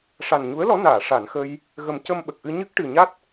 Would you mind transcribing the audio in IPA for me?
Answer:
ʂa˨˩nɲu˧˥ə̯lɔ˧˥naː˨˩˨ ʂa˨˩˨nxə˧j | ɣə˨˩˦mcə˧mɓə˨˩k̚ʔɨ˧ ɲɨ˦˥k̚ʈɨ˨˩ɲa˦˥t̚

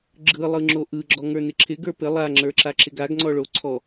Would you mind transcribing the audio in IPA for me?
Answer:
ɡ͡ǁɯlˠɯŋ͡ǁo ʔɯɡ͡ǁɔŋə˞nɪ ǁʰɪɡə˞ pɪ lˠaŋ͡ǁə˞ǁaǁɪ ɡaɡŋ͡ǀɔɭo ǀʰɔ

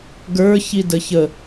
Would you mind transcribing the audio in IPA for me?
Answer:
ɡə˞ çidəçə

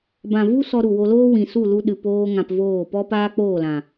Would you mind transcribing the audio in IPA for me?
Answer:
bã˨vu˦ sɔ˧ɾu˨wo˧loː˦ wĩ˨su˦˨lu˧ ɗɨ˨ poː˦ŋã˧pvoː˦˨ pɔ˦paː˦k͡poː˦˨lã˨

